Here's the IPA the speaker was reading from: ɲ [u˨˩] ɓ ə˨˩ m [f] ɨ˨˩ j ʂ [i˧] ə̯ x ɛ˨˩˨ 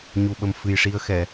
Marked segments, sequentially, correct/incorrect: correct, correct, correct

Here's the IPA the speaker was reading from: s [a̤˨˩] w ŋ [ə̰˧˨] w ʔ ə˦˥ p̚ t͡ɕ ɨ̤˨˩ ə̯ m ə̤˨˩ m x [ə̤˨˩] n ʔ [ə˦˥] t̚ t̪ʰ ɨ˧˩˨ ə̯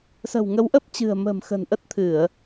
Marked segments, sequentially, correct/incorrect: incorrect: ə̤˨˩, incorrect: ə˨˦, correct, correct

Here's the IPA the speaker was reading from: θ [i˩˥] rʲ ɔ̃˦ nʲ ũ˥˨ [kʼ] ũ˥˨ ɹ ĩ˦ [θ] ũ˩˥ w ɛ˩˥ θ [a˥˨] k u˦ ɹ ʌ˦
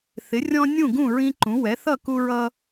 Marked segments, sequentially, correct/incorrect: incorrect: ɪ˩˥, incorrect: ɡ, incorrect: ǃ, incorrect: ʌ˥˨

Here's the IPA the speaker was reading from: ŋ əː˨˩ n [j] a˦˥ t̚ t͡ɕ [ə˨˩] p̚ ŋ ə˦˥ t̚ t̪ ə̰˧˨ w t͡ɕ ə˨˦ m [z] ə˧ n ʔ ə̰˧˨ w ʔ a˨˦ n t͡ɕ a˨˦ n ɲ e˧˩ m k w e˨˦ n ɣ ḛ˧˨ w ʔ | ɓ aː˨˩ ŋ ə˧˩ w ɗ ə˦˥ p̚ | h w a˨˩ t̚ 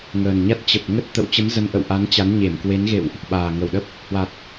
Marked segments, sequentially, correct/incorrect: incorrect: ɲ, correct, correct

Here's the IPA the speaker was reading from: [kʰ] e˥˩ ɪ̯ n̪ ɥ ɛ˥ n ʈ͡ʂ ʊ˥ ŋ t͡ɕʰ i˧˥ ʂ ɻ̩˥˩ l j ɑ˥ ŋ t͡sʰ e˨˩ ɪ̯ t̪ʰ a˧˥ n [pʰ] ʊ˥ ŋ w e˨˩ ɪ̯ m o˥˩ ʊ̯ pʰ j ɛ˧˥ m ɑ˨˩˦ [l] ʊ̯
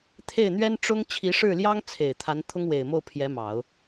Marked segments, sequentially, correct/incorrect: incorrect: t̪ʰ, incorrect: t̪ʰ, incorrect: none

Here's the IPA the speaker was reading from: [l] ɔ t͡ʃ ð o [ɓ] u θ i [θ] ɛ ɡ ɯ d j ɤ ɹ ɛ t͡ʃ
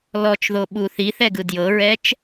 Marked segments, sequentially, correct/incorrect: correct, correct, correct

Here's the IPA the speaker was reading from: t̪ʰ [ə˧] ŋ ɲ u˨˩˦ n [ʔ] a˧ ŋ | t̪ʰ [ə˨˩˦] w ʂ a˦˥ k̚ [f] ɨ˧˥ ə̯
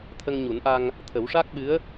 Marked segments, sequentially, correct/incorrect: correct, correct, correct, incorrect: ɓ

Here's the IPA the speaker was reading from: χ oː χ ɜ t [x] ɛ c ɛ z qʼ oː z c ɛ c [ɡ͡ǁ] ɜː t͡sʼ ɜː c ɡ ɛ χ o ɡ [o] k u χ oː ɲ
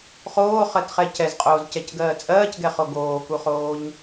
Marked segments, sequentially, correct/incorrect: incorrect: χ, incorrect: ɡ, incorrect: oː

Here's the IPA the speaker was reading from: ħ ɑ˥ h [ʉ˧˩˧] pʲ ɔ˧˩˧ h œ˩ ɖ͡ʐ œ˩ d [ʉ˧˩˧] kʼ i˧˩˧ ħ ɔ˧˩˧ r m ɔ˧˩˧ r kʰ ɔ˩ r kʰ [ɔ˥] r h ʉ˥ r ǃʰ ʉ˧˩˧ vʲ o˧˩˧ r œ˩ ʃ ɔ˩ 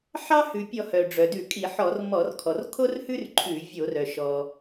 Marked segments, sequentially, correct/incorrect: incorrect: ʉ˩, correct, incorrect: o˥

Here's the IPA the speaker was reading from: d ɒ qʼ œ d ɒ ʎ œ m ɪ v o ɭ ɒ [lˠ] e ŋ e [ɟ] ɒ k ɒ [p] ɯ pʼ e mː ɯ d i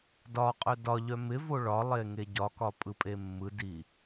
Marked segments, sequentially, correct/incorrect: correct, correct, incorrect: pʼ

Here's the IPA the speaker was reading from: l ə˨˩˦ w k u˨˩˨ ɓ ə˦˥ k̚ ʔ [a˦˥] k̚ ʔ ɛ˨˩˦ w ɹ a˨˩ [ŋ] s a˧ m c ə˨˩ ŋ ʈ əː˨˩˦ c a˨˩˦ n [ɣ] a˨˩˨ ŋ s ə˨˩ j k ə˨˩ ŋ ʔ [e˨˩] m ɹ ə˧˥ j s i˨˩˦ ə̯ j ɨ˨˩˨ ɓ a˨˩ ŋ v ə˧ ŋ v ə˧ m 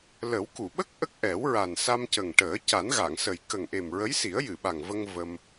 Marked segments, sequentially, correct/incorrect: incorrect: ə˦˥, incorrect: n, correct, correct

